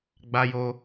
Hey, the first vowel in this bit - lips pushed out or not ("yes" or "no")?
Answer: no